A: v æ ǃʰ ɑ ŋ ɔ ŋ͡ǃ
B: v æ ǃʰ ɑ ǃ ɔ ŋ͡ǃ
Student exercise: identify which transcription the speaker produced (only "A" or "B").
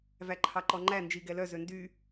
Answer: B